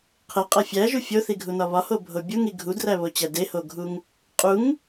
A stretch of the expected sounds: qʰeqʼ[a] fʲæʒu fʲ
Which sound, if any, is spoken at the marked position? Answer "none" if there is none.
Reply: æ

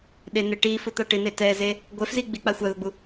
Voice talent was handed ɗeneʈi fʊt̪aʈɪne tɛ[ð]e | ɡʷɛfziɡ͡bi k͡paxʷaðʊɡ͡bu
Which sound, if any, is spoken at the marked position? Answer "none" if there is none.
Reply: z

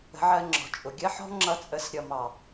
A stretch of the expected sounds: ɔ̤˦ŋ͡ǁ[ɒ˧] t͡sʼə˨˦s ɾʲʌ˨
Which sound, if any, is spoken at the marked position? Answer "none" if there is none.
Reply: ʌ˧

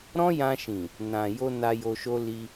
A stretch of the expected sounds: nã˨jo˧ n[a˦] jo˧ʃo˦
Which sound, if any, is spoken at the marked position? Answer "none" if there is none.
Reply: a˧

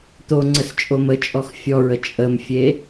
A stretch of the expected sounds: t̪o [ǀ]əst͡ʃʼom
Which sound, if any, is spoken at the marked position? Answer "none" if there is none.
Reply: ŋ͡ǀ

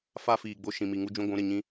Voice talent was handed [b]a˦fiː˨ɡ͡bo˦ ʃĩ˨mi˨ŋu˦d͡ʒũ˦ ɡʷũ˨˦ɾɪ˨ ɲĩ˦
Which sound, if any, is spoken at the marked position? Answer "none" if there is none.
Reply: f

